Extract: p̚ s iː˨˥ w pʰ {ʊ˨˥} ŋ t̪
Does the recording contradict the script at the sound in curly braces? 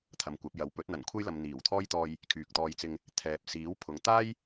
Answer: yes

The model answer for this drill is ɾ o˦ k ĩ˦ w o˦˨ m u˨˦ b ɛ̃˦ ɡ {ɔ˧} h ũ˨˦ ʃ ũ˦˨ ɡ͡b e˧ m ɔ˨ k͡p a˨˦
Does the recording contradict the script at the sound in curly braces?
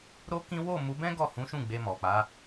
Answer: yes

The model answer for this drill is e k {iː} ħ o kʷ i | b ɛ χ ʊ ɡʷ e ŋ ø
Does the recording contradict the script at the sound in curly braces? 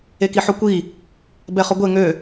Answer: yes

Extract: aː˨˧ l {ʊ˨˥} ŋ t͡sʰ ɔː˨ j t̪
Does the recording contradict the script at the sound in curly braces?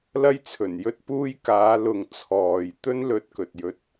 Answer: yes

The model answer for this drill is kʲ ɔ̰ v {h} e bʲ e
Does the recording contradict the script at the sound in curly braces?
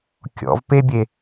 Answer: yes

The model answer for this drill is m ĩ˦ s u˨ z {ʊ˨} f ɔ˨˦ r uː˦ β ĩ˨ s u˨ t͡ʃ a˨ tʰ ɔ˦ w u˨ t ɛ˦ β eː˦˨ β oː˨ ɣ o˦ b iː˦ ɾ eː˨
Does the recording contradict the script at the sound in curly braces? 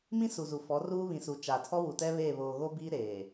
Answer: yes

